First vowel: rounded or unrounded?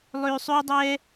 rounded